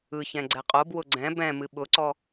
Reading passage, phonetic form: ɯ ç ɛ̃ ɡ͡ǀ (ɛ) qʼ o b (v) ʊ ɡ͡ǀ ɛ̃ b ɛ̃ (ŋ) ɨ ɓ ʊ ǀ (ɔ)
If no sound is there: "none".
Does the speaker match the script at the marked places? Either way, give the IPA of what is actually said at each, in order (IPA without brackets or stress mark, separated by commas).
ɛ, w, m, ɔ